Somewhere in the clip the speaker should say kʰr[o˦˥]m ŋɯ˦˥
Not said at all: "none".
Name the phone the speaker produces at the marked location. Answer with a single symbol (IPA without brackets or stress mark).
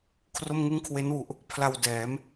o˥˩